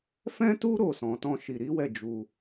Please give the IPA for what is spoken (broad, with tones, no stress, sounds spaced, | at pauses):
f ɛ̃˦ t u˦ ɾ o˦˨ s ɔ̃˨˦ t ɔ̃˦ ʃ i˧ ɾ i˦ w ɛ˦˨ d͡ʒ u˧